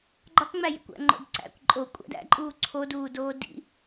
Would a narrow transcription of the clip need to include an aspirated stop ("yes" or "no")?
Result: yes